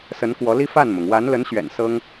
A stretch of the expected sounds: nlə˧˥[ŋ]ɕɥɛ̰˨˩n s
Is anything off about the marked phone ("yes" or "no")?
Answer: yes